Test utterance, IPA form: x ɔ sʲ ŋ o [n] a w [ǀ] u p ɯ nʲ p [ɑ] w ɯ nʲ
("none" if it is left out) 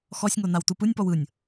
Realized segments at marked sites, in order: n, t, ɔ

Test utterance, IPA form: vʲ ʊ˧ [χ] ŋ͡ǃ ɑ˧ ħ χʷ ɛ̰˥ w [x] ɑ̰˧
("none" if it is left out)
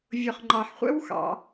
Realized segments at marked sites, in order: χ, x

